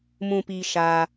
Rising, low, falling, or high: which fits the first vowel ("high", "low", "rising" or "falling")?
low